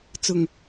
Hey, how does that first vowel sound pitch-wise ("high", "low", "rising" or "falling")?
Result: low